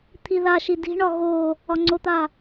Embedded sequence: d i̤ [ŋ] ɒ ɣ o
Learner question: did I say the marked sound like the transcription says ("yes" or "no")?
no